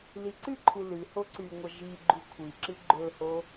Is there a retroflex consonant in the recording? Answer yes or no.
no